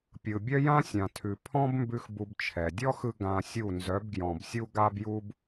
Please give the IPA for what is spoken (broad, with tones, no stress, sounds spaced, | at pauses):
pʲ ɯ˨ bʲ œ˦ j ã˦ sʲ ã˨ tʰ ʉ˨ pʰ ɔ̃˦ b m b ʉ˧ x b u˧ b t͡ʃʰ ɛ˨ dʲ ɔ˦ x ɯ˧ ɡ ã˧ sʲ u˦˨ n z œ˨˦ b ɡ j ɔ̃˨ b sʲ u˦ ɡ a˦ b j u˦ b